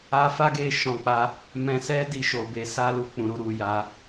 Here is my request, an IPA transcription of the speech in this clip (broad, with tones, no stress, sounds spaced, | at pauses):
a˧ f a˦ ɡ e˧ ʃ ɔ̃˨ k͡p a˧ | m ɛ̃˨ s ɛ˧ d i˧ ʃ o˨ b e˨˦ s a˦ l u˦˨ k͡p ũ˨ ɾ u˧ ɾ u˨ j a˨˦